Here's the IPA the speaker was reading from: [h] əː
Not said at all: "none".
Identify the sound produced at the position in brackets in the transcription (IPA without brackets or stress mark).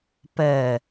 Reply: p